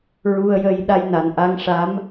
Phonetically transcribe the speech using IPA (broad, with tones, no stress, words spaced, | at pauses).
ɹu˧ə̯jə˧j ɗa˧jna˨˩nʔa˧ŋʂa˧˥m